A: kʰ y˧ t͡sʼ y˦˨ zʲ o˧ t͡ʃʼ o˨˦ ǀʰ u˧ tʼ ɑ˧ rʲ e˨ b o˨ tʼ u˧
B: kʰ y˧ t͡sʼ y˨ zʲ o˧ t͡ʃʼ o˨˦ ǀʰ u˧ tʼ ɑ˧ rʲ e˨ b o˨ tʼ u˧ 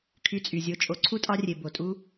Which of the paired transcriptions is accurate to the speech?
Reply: B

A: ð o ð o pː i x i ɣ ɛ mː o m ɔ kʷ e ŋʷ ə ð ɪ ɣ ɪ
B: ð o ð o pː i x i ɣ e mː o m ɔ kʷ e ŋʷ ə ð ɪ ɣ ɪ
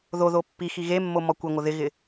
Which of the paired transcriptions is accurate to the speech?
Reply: B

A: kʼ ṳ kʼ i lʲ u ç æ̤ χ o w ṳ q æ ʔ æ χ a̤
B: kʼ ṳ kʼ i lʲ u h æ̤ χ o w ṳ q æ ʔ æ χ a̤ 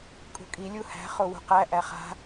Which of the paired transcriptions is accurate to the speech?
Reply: B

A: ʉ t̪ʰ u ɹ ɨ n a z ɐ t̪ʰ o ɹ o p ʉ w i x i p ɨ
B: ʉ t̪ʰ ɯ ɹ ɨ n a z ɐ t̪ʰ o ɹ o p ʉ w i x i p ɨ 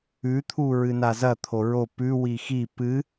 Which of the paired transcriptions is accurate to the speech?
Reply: A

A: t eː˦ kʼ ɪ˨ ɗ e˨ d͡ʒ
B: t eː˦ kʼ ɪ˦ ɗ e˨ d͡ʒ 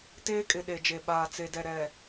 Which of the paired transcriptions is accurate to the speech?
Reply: A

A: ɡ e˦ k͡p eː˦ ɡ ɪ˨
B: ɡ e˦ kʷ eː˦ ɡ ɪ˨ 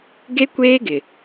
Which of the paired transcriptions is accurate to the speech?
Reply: B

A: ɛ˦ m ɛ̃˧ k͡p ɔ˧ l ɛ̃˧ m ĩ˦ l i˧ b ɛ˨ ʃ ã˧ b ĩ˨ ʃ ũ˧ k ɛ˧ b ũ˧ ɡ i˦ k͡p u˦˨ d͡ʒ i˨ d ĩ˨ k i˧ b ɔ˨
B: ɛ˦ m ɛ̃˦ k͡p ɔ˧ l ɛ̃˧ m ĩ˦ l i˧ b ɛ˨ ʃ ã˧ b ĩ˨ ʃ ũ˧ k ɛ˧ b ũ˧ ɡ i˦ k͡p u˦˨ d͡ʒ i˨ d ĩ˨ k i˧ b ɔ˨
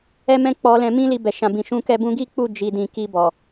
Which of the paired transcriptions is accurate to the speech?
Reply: B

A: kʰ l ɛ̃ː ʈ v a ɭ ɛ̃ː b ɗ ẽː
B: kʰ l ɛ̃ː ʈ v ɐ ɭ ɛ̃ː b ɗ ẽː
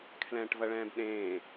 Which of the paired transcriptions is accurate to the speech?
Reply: B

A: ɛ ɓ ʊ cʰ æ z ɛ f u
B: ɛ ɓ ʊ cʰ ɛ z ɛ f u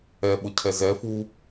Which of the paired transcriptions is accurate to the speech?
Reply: B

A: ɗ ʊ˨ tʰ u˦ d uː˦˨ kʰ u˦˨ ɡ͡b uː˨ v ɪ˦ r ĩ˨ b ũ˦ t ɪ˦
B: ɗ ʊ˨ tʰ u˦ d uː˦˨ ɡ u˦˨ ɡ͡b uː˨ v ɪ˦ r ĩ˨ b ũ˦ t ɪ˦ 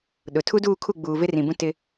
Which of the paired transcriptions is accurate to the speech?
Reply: A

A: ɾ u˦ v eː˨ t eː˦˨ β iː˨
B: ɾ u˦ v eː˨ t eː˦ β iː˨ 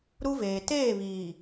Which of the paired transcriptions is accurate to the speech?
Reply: A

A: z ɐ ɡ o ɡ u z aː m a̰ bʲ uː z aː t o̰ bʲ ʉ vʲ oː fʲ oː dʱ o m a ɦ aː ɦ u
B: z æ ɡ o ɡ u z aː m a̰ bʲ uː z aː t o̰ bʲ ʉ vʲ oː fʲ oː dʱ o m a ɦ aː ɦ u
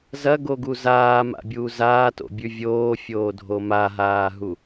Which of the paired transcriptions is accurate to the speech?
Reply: A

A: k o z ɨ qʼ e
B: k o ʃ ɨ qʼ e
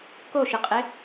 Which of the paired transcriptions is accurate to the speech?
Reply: B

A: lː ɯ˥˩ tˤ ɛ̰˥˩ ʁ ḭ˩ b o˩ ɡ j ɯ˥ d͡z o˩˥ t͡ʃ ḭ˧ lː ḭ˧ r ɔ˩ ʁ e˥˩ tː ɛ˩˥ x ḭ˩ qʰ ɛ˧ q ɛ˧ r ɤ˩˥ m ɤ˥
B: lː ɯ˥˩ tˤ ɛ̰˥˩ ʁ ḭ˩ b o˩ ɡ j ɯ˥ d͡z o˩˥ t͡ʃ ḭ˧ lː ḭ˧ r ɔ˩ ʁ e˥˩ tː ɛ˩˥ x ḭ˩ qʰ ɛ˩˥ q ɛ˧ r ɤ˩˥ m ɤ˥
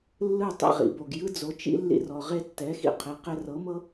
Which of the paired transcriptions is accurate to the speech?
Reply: B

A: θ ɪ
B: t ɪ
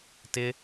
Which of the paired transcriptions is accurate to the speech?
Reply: B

